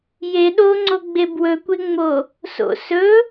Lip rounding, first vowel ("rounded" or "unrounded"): unrounded